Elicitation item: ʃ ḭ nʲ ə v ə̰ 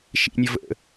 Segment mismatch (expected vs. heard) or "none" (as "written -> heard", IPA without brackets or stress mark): none